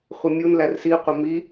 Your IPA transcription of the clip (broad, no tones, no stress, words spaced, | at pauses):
χʷɪmʲun lærsi qʷɪmi